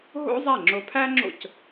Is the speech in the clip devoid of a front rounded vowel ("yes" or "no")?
yes